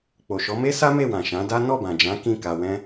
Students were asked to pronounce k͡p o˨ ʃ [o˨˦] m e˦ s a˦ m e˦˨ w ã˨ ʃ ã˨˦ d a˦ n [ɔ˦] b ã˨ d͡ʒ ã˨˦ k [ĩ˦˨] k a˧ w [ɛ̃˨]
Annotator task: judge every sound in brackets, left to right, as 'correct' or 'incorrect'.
incorrect: ɔ˨˦, incorrect: ɔ˦˨, correct, incorrect: ɛ̃˦

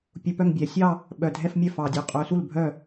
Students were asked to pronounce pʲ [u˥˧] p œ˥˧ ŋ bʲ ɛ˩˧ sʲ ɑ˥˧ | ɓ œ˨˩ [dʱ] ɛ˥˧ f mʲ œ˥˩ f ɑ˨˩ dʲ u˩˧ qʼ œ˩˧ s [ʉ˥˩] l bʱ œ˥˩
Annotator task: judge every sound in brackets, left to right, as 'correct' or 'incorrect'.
incorrect: u˧, correct, incorrect: u˥˩

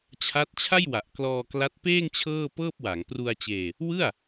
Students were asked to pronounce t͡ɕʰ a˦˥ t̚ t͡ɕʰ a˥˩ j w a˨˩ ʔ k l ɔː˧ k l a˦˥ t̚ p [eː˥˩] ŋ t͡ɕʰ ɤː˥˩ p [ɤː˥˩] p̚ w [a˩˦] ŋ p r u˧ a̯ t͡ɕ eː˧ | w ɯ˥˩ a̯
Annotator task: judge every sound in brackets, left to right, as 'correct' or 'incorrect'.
correct, correct, correct

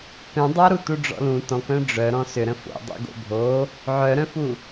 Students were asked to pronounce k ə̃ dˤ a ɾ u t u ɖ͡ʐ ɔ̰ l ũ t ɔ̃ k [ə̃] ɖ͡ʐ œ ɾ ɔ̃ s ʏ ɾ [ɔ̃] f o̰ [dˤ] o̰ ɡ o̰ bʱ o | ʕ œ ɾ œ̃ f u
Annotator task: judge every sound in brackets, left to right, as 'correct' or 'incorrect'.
incorrect: œ̃, incorrect: ə̃, correct

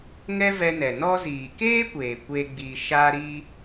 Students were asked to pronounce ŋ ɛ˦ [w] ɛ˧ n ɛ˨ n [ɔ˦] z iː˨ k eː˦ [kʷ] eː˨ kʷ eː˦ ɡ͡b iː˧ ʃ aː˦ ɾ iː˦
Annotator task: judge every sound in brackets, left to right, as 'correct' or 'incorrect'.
incorrect: v, incorrect: ɔ˧, correct

